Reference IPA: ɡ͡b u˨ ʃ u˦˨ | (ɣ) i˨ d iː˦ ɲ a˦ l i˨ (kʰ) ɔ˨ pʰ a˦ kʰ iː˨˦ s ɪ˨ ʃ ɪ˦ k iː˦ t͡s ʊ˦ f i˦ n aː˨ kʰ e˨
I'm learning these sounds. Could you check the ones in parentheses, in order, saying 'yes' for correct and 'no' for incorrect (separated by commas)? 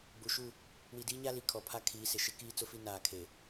no, yes